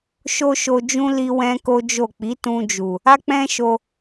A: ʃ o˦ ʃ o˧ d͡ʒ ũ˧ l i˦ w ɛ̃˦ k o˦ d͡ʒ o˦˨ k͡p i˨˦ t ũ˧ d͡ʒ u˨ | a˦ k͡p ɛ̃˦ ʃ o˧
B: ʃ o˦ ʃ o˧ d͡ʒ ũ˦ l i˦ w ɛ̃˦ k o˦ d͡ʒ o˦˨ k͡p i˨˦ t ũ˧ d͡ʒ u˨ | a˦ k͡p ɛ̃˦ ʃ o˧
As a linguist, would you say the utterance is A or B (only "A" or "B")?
B